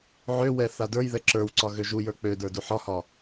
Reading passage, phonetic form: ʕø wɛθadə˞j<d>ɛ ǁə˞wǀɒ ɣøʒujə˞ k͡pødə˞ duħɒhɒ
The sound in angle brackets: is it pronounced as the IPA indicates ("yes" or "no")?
no